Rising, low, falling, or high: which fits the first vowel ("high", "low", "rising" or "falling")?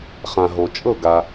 low